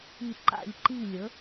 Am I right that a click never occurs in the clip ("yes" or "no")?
no